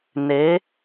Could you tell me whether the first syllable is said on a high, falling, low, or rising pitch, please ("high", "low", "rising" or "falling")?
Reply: rising